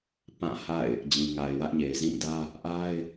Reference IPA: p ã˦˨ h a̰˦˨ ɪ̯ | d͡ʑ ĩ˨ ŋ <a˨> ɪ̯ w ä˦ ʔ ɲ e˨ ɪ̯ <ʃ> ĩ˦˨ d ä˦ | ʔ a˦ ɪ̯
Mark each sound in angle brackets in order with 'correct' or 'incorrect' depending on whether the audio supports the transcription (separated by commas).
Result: correct, incorrect